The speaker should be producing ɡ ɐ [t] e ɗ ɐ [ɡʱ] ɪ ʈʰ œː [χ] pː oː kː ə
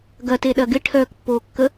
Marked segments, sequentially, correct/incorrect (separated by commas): correct, incorrect, incorrect